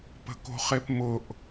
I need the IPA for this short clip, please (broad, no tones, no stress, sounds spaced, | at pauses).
p ə̤ k o̤ χ e p m ʊ ʔ